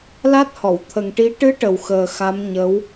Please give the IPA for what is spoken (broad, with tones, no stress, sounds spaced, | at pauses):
l a˦˥ t̚ h ɔ˨˩˨ w t̪ʰ ə˨˩ ŋ ʈ i˧˥ ʈ ɨ˧˥ ʈ ə˨˩ w x əː˨˩ x a˧˥ m ɲ ə˧˥ w